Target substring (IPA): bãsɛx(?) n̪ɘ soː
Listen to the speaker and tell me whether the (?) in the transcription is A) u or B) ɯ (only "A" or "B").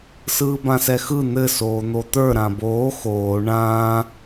B